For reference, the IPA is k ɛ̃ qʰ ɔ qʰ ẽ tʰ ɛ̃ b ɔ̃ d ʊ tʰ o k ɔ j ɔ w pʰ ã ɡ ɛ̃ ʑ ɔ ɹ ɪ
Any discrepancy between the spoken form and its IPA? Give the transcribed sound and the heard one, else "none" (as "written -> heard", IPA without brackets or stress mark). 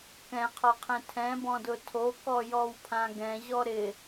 ɹ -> ɾ